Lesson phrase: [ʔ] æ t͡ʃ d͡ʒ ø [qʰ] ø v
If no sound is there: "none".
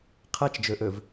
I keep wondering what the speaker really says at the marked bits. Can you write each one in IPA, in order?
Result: qʰ, ʔ

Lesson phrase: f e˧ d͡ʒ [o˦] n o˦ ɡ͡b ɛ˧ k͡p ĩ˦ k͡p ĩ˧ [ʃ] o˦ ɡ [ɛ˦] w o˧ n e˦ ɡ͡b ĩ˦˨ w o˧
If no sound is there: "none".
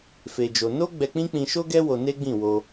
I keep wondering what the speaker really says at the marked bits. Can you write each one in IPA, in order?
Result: o˧, ʃ, ɛ˦

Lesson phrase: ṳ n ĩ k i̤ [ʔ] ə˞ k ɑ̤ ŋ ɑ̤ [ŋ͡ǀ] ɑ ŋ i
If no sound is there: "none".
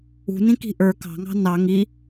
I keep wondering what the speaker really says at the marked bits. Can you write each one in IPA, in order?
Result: ʔ, n

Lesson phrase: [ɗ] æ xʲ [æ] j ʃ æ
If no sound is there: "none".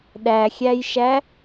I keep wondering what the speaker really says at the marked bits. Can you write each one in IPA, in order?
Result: ɗ, æ

